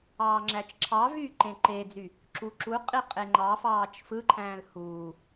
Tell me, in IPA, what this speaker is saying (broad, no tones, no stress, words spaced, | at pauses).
ɑːŋ͡ǁæt͡ʃǁʰɑvyː ǃẽǃed͡zy | ǁuǁuqʼi qʼeŋ͡ǃɑfɑːt͡ʃ fɯǃʰæ̃ːl huː